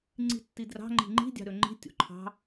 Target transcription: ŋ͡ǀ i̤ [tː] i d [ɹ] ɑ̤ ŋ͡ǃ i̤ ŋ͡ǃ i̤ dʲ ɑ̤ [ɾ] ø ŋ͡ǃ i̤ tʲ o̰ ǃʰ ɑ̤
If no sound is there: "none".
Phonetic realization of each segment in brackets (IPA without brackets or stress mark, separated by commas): tː, r, ɾ